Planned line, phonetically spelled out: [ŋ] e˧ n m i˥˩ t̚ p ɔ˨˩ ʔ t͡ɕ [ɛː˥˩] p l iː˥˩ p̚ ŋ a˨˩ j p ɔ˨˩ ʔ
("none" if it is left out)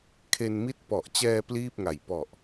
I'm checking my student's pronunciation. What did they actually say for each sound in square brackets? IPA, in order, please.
kʰ, ɛː˧

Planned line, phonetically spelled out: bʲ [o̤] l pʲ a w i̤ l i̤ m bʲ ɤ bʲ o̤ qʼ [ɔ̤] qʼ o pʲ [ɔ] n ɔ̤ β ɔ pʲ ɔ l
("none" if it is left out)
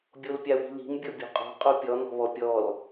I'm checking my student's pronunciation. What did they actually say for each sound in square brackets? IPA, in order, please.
o, ɔ̤, ɔ

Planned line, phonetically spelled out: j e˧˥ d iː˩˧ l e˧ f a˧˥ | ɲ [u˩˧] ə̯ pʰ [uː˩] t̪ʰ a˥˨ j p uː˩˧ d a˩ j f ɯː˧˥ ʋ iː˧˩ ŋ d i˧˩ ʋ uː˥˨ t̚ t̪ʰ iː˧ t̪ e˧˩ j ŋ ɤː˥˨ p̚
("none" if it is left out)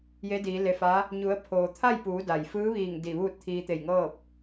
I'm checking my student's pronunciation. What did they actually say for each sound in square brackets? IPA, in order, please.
u˩˧, oː˩

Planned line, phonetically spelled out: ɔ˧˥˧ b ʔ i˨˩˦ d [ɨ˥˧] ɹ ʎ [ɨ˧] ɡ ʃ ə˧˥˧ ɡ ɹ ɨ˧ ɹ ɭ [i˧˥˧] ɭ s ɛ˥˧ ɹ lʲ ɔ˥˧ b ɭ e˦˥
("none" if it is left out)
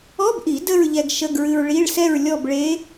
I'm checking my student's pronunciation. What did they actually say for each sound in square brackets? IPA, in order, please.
ə˥˧, ɛ˧, i˧˥˧

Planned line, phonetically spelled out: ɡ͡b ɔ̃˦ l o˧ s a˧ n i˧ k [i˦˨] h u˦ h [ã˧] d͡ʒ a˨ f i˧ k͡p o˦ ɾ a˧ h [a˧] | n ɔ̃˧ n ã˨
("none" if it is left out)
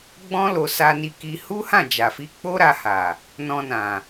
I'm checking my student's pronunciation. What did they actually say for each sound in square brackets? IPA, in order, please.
i˧, ã˦˨, a˨

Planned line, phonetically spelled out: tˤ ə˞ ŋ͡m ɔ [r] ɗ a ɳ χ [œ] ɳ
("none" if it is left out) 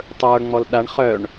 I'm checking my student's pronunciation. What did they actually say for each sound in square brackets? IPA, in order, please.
l, œ

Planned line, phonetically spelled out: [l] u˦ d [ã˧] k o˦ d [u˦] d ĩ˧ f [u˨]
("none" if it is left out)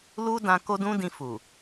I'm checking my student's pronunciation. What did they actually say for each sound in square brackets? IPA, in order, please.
l, ã˧, ũ˦, u˨

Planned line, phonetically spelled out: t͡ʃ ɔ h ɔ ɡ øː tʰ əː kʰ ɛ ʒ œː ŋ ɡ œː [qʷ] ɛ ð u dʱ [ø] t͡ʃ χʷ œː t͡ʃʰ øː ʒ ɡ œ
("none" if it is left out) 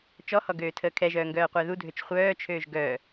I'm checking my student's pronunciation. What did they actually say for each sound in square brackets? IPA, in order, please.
qʷ, ø

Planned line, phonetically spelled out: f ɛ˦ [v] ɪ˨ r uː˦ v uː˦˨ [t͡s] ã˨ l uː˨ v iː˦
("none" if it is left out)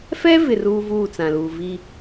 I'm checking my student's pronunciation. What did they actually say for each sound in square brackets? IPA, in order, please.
v, t͡s

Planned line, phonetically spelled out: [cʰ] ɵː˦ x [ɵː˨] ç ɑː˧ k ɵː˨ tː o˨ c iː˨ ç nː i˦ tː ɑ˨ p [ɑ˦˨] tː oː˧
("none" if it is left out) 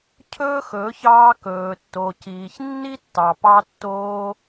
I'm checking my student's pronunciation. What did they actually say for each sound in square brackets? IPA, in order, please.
cʰ, ɵː˨˦, ɑ˧

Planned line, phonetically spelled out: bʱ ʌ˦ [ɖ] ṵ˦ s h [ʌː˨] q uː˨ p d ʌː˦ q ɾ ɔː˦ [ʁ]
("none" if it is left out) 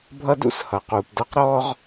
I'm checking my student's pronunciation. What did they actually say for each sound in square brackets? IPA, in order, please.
d, ʌː˨, ʁ

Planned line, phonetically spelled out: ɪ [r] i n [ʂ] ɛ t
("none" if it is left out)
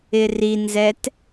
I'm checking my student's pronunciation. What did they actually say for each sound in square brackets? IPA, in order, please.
r, z

